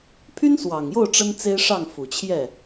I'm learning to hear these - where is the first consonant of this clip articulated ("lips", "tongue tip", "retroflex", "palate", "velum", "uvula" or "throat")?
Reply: lips